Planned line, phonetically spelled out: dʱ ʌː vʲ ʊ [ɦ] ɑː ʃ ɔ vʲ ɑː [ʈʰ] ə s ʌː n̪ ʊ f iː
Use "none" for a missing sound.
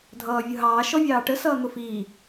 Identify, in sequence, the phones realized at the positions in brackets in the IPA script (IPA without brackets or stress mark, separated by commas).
ɦ, ʈ